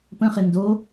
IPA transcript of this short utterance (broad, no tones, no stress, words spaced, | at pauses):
pə̃χɪ ndo